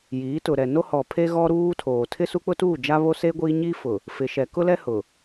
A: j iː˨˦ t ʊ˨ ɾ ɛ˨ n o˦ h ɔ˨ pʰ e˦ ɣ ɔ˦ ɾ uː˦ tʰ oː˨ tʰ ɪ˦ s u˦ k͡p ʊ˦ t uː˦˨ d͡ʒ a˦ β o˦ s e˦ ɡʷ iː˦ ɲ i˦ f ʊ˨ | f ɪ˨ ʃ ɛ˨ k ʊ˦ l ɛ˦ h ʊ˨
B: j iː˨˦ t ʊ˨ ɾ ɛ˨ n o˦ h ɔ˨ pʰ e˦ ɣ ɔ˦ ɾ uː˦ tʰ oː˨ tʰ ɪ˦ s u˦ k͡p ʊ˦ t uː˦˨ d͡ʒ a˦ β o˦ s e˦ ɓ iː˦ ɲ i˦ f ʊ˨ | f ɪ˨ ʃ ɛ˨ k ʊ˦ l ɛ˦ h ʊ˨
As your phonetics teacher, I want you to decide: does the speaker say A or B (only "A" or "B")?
A